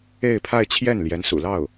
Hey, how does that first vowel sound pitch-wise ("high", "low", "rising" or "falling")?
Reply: falling